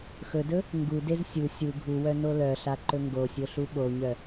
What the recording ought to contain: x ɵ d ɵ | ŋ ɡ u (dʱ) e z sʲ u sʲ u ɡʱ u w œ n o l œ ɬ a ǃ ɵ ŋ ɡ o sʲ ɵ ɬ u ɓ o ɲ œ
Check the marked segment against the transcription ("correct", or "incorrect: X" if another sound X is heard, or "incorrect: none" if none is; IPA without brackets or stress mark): incorrect: d